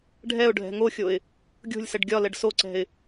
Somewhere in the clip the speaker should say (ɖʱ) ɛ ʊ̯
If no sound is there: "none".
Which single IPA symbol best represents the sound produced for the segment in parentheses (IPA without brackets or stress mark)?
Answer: ɖʱ